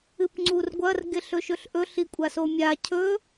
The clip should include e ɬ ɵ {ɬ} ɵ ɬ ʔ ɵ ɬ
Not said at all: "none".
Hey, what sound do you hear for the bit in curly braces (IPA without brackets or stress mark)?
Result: ʃ